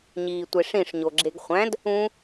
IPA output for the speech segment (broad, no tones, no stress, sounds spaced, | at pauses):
ɲ iː tʷ e ʂ ĩ ʂ ɲ o ɡ͡ǁ e ɡ χʷ æ̃ d | ũ